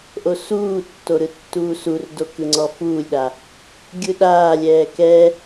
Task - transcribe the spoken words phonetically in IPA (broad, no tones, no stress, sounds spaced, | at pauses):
ʔ o s uː tː o ɾ ɯ tː uː s u r d o k ɯ ŋ͡ǀ ɔ f uː lʲ ɗ a | ɡʲ ɯ ɗ aː lʲ ɛː k ɛ